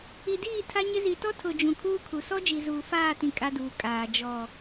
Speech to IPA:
i˨diː˦˨ tʰa˦ɲɪ˦ zi˨tɔ˦tʰʊ˨ d͡ʒũ˨kʰuː˦kʰu˨ sɔ˦d͡ʒi˨zuː˨ faː˦˨tĩ˨ kʼa˦duː˨kʼaː˨ d͡ʒɔ˨

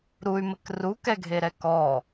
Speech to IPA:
ɾuy̯mɘk rukɛɡʱeɾɛ kɔ

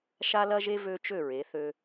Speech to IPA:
ʃa˥lɐ˥ʒe˥ vø˥t͡ʃø˥˧ɹe˩˧θø˧

